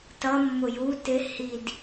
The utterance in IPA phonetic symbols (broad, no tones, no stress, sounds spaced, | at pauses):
t ʌ mː ʊ j u t ɪ h i d